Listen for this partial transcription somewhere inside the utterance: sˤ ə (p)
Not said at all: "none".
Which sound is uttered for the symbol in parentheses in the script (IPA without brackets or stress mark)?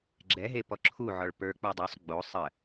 none